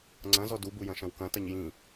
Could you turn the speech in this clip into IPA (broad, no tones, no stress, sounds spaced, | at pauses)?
ŋ͡ǀ ɐ̃ z ɔ d u b u j ɐ̃ ʃ ɐ̃ w k ɐ̃ t ɐ ɲ j ĩ